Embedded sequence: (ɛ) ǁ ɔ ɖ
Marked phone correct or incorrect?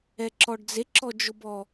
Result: correct